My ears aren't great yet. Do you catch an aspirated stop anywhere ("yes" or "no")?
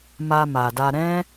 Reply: no